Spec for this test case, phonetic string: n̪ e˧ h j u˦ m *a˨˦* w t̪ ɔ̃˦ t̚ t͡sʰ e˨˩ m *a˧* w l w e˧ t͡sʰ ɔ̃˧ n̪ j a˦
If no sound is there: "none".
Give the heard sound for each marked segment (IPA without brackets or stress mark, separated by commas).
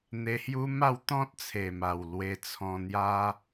a˥˧, a˨˩